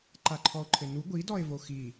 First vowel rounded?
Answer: no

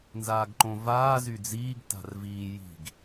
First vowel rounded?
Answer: no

